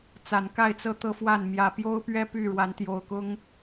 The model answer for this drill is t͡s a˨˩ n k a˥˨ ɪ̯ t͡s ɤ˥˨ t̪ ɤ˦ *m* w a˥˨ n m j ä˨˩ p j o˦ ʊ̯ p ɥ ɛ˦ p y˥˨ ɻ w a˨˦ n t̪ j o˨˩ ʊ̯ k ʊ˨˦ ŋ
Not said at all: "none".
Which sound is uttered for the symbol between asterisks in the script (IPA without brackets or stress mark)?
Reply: f